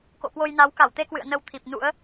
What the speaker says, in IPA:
k o̰˧˨ k w o˧ j n a˨˦ w k a˧˩ w t̪ e˧ k w ɨ̰˧˨ ə̯ n ə˧ w t̪ʰ i˨˩ p̚ n ṵ˧˥ ə̯

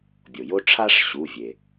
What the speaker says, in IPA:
bʲ o˩ j o˥ ʈ͡ʂʰ a˥ ʂ ɕ u˩˧˩ vʲ e˩

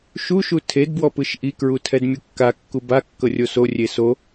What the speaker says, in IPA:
ʃ u ʃ u tʰ e d b w ɔ p ɯ ʃ ʔ i k ɹ u tʰ ɛ d mʲ u kː a kː u b a kː ɤ rʲ o s o rʲ e s o

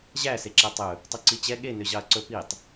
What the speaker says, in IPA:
ʑ æ s e ǁ æ tˤ ɵ | tˤ ʉ ǀ i t͡ɕ ɛ ɠ e n ø ʑ ɑ ɐ̯ ǀ ɵ p i tˤ

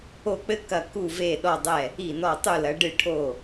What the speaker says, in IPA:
o˧˩ k͡p ɘ˧˥ k ɐ˧˩ k u˧˩ v e˧˩ ɗ ɔ˧˩ dˤ ɛ˧˩ | i˧˩ n ɔ˧˩ tˤ u˧˩ l ɐ˩˧ ɖ ɨ˧˩ ʈʰ o˧˩

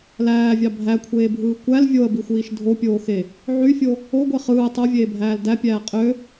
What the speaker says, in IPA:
l æː vʲ ɑ bʱ æ kʷʰ eː bʱ ɯː kʷ æ l vʲ o ə̯ b i xʷ iː ʃ dʱ o pʲ oː x e | ʕ y fʲ o | o ɡʷ e χ ɯː tˤ o vʲ eː bʱ æː l d æ pʲ æː qʼ ø

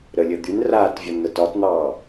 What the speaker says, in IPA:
ɾ ə lʲ ə d̪ y n r aː t vʲ ɒ n n̪ ə t ɒ t n̪ ɑː

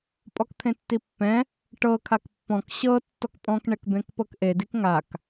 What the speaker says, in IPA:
pʼ ɔ k t̪ʰ ẽ tː i pː ɛ̃ | ʈ ɤ kʰ a k pː ɔ̃ k ɕ ɤ tː ɔ k pʼ ɔ̃ k ɳ ɛ k b ẽ k p ɤ k ʔ e d i k ŋ a k

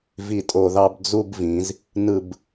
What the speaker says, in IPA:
v i˦˨ tʼ o˦˨ ð ɑ˥ b d͡z u˥ b v ĩ˩˧ z | n ɯ˦˨ b

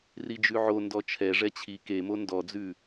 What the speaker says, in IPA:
r i d͡ʒ ʉ ʕ o n d ɔ t͡ʃʰ ɛ ʐ ɛ t͡ɕʰ i k e m o n d ɔ d͡z ʉ

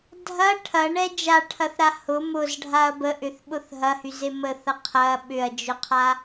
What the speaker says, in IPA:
dʱ ɐ ʈʰ ɐ ɳ ɛ d͡ʒ a ʈʰ ɐ θ ɾ a h ʊ m ʊ z ɖʱ a ɐ̯ b ə ʔ ʏ θ ɓ ʊ θ ɦ ɐ h y z e m ə θ ɐ qʰ ɐ ɓ ʏ ɐ̯ d͡ʒ ʊ qʰ a

